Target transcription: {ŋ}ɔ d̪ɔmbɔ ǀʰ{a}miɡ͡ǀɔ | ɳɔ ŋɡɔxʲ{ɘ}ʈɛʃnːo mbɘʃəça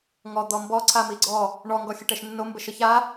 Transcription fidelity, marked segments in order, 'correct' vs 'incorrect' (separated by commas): correct, correct, correct